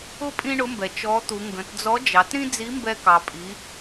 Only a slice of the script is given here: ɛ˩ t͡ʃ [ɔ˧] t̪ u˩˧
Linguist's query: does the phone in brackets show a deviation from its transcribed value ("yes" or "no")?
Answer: yes